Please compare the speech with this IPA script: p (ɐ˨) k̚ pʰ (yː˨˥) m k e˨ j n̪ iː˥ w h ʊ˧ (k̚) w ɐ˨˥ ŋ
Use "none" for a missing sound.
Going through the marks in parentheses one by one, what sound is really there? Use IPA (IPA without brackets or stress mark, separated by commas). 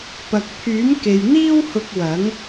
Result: ɐ˨, yː˨˥, k̚